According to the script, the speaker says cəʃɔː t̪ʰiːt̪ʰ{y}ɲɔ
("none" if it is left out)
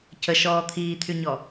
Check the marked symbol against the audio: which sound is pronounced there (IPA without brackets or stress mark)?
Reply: y